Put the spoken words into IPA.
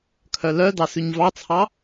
kʰ œ l œ d ɑ s ʉ ɲ v ɑ t͡sʰ ɑ

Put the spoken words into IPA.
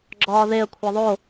ɡ͡ǁ ɒː ð e ə̯ kʷʰ e ðˤ o

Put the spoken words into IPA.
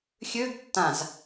xʲ ø ɡ tː ã z

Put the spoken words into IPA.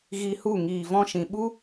ɣ i˧ h u˦˨ ŋ iː˨ v ɔ̃˧ ʃ ĩ˨ ɓ u˦

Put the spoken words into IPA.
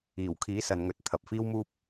iː˨˩ w kʰ iː˨˥ s ɐ˨ n ŋ ɵ˨˥ t̚ t̪ʰ ɐ˨ p̚ f iː˥ w m uː˥ p̚

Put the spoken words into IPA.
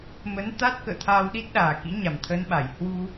m ə˨˦ n t̪ a˦˥ t̚ k ə̰ː˧˨ t̪ʰ aː˧ w ɗ i˦˥ t̚ ɗ aː˨˩ k ḭ˧˥ ɲ a˨˩ m t̪ʰ əː˧ n ɓ a˧˩ j h w u˧

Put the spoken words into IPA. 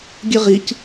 ɡʲ ɨ ʁ i c

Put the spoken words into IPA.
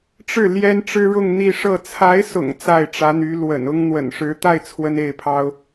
ʈ͡ʂ ɻ̩˥˩ l j ɛ˥ n ʈ͡ʂ ɻ̩˥ ɻ ʊ˥˧ ŋ n̪ i˥˧ ʂ ɤ˥˩ t͡sʰ a˧˥ ɪ̯ s ʊ̰˨˩ ŋ t͡s a˥˩ ɪ̯ ʈ͡ʂ ä˧˥ n̪ y˧˥ l w ə̰˨˩ n ʊ˥ ŋ n̪ w ə̰˨˩ n ʂ ɻ̩˧˥ t̪ a˥˩ ɪ̯ t͡sʰ w ə˥ n e˥˩ ɪ̯ pʰ ɑ˥ ʊ̯

